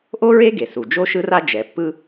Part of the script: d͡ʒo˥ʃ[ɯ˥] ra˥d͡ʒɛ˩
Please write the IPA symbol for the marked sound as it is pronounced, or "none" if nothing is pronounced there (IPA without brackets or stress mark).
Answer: ɯ˥